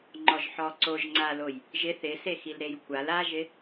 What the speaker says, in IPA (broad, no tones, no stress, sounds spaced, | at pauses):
ŋ͡ǃ ɔ ʒ ħ ɔ ǀ o ʒ ŋ͡ǀ a l o j | ʒ ɪ θ ɪ s e x i l ɾ e j kʷʰ a l a ʒ ɪ